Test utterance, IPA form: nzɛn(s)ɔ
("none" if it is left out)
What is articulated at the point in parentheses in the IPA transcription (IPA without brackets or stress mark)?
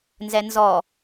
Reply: z